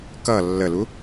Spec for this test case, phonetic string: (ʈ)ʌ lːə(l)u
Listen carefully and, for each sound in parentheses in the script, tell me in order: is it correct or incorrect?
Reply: incorrect, correct

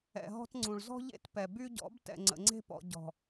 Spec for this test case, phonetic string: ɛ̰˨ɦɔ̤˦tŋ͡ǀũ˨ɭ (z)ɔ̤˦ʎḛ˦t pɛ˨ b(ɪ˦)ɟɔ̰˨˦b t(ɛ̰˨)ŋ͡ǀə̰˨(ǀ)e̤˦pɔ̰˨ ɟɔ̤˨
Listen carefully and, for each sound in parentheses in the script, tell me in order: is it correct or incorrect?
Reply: correct, incorrect, correct, incorrect

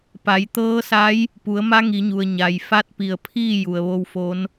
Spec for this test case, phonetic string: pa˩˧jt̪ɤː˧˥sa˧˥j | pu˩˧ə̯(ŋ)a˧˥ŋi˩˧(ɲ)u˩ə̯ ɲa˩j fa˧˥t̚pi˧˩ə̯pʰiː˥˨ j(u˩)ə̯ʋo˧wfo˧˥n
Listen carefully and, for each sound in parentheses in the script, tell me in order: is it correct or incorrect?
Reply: incorrect, correct, correct

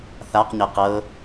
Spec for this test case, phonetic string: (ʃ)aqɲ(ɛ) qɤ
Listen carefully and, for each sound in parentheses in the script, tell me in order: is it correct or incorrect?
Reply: incorrect, correct

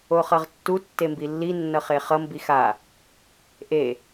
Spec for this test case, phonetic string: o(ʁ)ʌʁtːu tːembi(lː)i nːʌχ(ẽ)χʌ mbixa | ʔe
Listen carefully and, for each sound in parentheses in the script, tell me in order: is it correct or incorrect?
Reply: incorrect, correct, incorrect

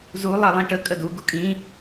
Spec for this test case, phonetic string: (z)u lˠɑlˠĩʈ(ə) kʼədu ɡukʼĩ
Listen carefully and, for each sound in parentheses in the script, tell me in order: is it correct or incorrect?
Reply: correct, correct

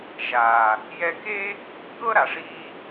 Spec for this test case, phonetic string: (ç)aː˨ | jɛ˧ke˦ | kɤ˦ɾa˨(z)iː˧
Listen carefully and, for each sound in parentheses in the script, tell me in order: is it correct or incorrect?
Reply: incorrect, incorrect

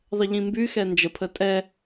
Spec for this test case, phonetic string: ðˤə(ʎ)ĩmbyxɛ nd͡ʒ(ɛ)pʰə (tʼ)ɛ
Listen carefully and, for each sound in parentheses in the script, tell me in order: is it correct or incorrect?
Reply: correct, incorrect, correct

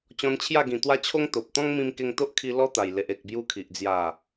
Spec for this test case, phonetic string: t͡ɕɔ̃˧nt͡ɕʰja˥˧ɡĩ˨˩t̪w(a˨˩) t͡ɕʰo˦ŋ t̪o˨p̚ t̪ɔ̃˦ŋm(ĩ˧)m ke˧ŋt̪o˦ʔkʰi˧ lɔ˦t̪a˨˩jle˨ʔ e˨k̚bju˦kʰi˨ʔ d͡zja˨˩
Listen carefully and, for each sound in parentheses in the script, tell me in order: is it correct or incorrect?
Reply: incorrect, correct

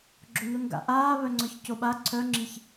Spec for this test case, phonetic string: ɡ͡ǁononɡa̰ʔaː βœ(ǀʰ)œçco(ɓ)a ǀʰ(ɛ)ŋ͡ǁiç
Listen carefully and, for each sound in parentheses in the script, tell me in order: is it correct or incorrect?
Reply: incorrect, correct, incorrect

